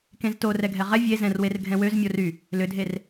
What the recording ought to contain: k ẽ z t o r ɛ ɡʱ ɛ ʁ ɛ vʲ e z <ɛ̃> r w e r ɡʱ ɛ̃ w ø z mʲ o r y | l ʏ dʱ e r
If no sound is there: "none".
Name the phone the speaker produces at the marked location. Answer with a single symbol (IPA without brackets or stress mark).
ɛ̃